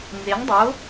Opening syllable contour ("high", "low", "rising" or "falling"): rising